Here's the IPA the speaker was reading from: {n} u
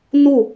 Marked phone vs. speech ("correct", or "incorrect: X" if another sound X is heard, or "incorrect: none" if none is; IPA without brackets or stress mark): correct